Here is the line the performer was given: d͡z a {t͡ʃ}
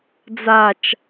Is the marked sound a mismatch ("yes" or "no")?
no